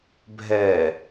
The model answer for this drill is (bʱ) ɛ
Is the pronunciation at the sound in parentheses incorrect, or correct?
correct